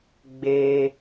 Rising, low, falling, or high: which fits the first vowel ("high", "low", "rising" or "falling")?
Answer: high